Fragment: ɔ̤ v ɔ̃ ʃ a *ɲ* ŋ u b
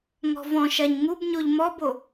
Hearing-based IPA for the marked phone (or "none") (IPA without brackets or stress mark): ɲ